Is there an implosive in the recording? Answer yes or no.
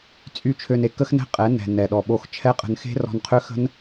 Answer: yes